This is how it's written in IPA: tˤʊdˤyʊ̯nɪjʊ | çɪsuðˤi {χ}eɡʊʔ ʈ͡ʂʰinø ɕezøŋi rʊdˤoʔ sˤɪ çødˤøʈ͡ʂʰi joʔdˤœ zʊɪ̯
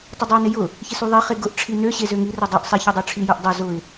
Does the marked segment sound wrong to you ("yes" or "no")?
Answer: no